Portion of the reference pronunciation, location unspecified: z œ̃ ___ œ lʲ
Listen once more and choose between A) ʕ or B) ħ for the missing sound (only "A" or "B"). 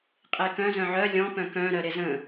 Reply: A